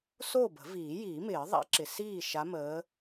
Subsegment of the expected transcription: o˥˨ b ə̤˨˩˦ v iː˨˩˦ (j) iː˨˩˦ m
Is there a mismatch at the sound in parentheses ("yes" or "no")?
no